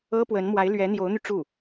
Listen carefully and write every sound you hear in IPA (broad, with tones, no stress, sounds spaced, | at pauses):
ɤ˥ p w ə˧˥ n m w a˧˥ ɪ̯ l ɥ ɛ˧˥ n̪ j o˧˥ ʊ̯ n̪ y˧ ʈ͡ʂ u˥˩